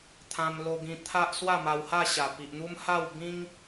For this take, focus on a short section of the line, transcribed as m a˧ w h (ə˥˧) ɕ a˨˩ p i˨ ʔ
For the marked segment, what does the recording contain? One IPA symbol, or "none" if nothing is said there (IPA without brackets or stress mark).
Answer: a˥˧